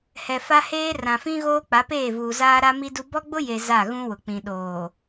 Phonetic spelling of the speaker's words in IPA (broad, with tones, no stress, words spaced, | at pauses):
hɛ˨fa˦heː˦ rã˨fĩ˦ ɣoː˦k͡pa˨˦peː˦˨vuː˨ zaː˦ɾa˦mi˦du˦ bɔ˦ɡ͡bʊ˦je˨ za˦˨ɣũ˦ wʊ˨k͡pĩ˨ ɗoː˨